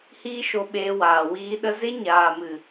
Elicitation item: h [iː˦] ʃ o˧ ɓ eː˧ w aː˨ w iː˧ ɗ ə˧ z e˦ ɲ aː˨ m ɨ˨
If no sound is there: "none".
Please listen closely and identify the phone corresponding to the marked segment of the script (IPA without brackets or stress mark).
iː˦